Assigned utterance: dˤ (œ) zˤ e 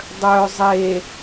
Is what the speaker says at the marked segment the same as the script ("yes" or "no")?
yes